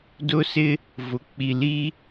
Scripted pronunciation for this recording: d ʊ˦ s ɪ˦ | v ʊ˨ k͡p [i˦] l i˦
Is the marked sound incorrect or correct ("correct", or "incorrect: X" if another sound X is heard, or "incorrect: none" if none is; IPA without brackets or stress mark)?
incorrect: i˨